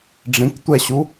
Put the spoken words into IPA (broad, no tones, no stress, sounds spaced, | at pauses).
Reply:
ɖ͡ʐ ĩ k tʷ ɛ ɕ u